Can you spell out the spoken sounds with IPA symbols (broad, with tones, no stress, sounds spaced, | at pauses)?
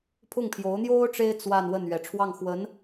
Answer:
pʰ ʊ˥˩ ŋ pʰ j o˧˥ ʊ̯ n̪ j o˥ ʊ̯ ʈ͡ʂ e˥ ɪ̯ t͡s w a˥˧ n w ə˥˩ n ɥ ɛ˨˩ ʈ͡ʂʰ w ɑ˥˩ ŋ x w ə˧˥ n